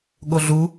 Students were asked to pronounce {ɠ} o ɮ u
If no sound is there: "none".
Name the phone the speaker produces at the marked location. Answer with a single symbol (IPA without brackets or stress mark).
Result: ɠ